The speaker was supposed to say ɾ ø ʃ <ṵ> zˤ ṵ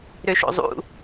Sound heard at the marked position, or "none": o̰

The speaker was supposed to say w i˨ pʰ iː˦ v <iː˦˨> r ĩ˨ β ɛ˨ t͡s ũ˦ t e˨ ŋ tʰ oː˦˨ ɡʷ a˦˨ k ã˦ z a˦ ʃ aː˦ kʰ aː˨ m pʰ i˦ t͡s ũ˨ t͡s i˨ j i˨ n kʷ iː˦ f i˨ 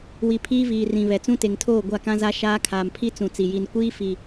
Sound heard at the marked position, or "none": iː˨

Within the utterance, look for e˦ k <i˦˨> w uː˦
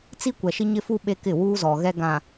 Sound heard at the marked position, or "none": ɪ˦˨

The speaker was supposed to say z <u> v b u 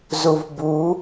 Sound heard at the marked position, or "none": u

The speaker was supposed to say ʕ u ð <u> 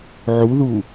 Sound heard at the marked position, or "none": u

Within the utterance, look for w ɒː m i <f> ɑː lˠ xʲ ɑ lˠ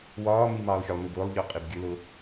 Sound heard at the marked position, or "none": m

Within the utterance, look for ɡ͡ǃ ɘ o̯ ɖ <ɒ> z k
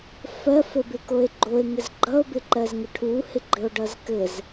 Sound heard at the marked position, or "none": ʌ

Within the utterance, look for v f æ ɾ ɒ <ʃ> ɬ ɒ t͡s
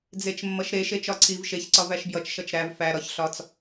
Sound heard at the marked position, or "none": ç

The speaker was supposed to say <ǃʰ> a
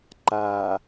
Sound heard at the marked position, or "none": ǃ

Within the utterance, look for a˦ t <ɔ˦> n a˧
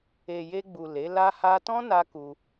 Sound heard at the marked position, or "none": ɔ̃˦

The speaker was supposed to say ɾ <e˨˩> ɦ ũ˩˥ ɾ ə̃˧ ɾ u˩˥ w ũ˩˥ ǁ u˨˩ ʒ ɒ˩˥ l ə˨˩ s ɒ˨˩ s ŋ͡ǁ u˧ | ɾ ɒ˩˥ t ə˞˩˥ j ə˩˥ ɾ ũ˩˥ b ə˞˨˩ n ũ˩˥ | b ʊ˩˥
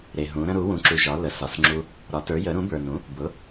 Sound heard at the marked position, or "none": e˨˩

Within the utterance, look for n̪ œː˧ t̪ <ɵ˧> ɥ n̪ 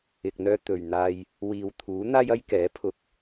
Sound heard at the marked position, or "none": ɵ˨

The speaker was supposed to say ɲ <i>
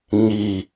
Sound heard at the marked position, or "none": i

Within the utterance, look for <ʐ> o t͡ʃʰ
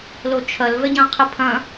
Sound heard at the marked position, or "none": l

